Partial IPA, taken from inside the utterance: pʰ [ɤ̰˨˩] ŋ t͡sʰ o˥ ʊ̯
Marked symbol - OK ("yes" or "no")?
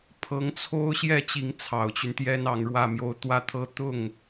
no